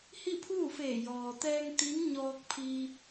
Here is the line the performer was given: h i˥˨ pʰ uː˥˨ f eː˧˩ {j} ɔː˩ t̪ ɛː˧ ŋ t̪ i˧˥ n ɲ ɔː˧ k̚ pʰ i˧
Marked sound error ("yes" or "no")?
no